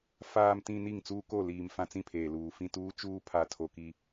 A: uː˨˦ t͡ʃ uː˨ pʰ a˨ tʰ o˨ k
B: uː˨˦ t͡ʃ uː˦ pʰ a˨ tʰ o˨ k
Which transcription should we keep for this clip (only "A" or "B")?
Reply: B